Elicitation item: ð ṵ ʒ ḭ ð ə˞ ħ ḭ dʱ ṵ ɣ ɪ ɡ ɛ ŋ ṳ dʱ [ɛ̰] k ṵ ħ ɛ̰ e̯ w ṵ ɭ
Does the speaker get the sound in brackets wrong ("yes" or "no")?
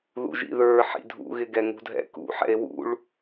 no